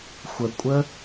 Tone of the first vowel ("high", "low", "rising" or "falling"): low